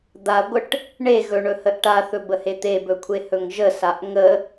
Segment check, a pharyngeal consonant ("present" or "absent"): absent